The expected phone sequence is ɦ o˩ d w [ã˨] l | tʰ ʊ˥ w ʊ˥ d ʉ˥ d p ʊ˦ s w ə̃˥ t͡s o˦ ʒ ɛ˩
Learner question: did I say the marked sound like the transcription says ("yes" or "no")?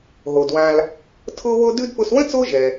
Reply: yes